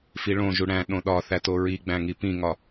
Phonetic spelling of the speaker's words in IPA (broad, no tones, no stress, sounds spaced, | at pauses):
f i ɭ õ ʒ u ɽ æ̃ ɗ õ ɗ ɒ θ æ t o ɹ i ɡ͡b æ̃ ŋ i p ĩ ŋ ɒ